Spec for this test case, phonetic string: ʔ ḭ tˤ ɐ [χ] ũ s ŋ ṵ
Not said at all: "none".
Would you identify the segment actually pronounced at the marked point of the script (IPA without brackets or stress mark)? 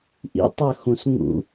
x